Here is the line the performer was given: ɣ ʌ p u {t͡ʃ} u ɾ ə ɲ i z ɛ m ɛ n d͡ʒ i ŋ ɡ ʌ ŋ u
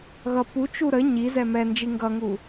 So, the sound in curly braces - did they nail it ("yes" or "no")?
yes